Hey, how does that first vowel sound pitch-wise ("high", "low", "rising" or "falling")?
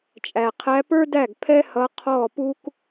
low